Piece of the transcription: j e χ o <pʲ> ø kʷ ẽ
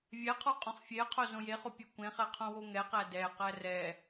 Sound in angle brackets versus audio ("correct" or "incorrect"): correct